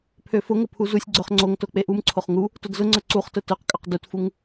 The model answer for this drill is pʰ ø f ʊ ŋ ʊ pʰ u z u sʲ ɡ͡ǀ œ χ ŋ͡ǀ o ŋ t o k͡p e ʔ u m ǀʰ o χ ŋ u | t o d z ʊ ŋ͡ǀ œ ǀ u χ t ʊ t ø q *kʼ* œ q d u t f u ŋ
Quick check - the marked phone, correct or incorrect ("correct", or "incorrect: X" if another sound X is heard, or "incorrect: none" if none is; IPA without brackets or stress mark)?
correct